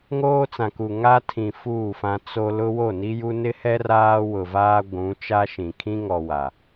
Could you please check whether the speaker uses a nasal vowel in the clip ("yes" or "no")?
yes